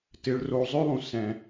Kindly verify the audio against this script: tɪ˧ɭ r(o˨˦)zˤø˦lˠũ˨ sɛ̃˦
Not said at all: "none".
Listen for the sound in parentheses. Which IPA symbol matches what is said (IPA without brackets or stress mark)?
o˧